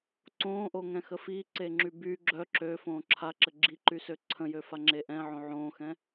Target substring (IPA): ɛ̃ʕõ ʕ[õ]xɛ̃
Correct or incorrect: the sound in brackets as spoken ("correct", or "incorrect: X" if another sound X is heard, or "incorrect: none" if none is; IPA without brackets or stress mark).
incorrect: õː